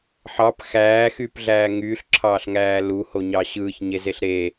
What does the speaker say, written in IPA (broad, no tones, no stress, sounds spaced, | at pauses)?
ħ ɑ p x æː x y p ɮ æː ŋ yː ɬ ǁʰ ɑː ɬ ŋ æː l u h o ɲ ɑ ɕ ɯː ç ɲ e z e ɬ ɾ e